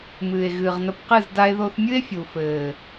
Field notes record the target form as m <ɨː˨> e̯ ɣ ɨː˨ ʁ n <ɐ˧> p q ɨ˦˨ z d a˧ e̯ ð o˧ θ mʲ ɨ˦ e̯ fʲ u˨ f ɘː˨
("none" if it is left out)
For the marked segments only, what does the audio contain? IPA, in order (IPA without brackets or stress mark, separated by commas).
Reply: ɨː˨, ɐ˧